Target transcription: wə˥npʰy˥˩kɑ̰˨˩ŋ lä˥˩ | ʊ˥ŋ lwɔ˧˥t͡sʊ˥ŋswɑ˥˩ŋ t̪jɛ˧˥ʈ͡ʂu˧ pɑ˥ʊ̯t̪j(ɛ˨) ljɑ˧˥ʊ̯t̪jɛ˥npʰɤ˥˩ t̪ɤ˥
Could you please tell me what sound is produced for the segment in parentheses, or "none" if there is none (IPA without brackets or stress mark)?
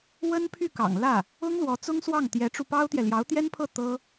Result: ɛ˨